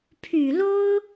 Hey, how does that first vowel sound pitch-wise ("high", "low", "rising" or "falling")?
low